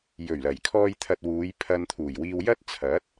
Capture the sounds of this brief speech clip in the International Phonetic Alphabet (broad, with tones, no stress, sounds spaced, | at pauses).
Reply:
j ɵ˨˩ ɥ l ɐ˨˩ j kʰ ɔː˧ j t̪ʰ ɐ˨ t̚ w uː˨˧ j pʰ ɐ˧ n t̪ʰ uː˨˩ j w iː˧ w j ɐ˥ t̚ t͡sʰ ɐ˨˥ t̚